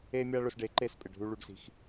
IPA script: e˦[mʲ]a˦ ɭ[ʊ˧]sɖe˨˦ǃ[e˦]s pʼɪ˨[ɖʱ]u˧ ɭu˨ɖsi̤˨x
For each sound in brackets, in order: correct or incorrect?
correct, correct, incorrect, correct

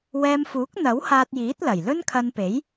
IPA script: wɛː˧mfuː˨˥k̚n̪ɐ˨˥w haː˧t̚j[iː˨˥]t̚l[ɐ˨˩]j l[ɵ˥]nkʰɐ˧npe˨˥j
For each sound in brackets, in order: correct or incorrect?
correct, correct, correct

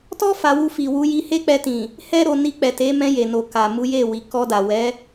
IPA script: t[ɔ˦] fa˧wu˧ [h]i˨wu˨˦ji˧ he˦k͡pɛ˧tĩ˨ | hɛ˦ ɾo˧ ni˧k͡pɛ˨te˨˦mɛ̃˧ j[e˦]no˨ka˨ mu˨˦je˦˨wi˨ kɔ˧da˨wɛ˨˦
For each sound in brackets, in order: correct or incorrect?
correct, incorrect, incorrect

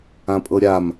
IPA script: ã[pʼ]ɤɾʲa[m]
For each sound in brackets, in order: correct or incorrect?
correct, correct

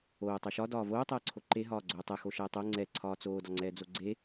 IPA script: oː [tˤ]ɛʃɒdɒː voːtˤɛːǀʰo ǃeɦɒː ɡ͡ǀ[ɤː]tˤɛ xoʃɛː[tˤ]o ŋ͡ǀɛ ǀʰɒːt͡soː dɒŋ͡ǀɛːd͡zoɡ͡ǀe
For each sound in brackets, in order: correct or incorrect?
correct, incorrect, correct

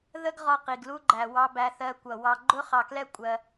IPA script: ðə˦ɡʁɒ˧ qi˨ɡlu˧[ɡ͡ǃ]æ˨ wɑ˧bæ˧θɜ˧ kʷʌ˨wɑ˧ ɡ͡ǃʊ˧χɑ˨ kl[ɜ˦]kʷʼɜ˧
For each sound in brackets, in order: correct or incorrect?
correct, incorrect

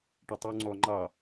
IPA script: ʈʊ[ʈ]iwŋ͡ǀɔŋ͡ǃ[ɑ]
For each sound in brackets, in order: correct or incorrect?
incorrect, correct

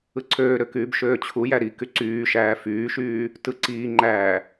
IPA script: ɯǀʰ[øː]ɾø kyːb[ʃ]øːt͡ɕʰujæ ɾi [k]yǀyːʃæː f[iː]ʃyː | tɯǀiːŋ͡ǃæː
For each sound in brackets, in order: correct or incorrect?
correct, correct, correct, incorrect

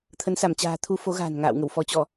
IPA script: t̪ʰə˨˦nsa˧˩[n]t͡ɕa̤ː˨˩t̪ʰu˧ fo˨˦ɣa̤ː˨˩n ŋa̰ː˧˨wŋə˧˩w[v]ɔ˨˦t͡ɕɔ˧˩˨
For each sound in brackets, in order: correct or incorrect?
incorrect, incorrect

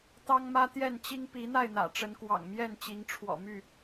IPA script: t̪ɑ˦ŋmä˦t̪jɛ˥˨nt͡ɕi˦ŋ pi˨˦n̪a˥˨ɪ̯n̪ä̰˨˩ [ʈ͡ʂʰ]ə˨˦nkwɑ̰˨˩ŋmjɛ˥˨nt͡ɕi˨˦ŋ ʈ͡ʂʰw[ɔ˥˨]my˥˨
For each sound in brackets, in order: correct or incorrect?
incorrect, incorrect

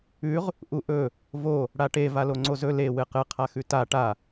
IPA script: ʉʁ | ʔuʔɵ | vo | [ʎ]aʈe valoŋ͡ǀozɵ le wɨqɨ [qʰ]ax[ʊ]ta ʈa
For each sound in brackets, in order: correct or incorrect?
incorrect, correct, incorrect

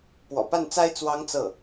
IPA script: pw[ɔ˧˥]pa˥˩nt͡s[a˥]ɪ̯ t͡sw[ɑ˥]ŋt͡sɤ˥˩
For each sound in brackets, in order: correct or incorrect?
incorrect, correct, correct

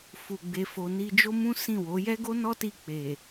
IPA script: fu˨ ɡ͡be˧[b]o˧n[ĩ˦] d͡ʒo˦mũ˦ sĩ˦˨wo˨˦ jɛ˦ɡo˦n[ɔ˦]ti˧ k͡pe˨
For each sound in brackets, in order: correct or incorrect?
incorrect, incorrect, correct

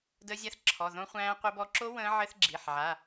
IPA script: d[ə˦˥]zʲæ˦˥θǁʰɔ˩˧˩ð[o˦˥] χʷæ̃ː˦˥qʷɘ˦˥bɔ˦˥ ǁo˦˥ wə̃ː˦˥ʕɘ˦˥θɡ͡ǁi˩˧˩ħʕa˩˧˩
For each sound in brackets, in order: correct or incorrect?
correct, incorrect

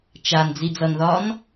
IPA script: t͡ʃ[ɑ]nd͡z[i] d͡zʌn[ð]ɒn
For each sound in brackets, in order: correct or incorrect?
incorrect, correct, correct

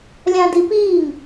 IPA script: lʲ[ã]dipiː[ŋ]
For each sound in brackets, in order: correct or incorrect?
correct, correct

